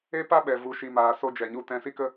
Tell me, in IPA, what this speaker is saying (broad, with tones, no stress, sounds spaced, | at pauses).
e˦ p a˦ ɓ ɛ˨ v u˨˦ ʃ i˨ m aː˨ s o˧ d͡ʒ ɛ˨ ɲ u˧ t ɛ̃˧ s i˦ k ə˦